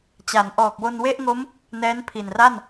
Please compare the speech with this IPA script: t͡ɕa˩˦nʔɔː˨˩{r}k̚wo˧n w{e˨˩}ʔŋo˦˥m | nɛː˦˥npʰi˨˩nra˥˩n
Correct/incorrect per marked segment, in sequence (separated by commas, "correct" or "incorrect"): incorrect, incorrect